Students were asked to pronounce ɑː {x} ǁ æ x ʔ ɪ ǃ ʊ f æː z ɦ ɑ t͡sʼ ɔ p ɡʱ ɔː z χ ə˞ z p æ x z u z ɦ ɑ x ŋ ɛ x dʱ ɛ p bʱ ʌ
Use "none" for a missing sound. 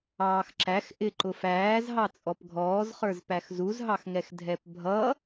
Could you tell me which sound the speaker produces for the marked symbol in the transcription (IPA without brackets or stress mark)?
x